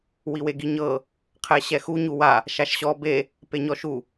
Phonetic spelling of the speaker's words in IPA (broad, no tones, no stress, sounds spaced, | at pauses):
w i w e ɡ i ɲ ɤ | qʰ ɛ ɕ ɛ x u ɲ u w a | ʃ a ʃ ɕ ɔ b e | p e ɲ ɔ ʃ u